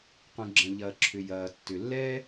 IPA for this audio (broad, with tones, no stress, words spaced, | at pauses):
qũ˩ɡ͡ǁɐ̃˩ʎɐː˩ǁʰʏ˩ jɐː˩ tːʏ˩ lːɛː˥